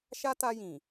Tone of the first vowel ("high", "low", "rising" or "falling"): high